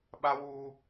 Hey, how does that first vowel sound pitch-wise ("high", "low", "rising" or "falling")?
high